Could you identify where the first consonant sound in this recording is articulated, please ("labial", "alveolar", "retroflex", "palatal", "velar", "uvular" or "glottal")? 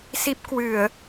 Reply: alveolar